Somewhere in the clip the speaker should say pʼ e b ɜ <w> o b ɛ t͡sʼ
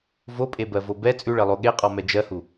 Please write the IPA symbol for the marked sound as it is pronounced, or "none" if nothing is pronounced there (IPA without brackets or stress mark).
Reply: v